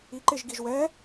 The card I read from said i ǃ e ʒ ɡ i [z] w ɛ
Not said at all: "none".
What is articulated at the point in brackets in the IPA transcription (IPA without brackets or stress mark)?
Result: ʒ